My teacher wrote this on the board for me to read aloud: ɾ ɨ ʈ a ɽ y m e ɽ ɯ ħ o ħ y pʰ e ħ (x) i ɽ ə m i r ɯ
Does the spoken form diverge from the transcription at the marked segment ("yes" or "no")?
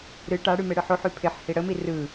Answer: yes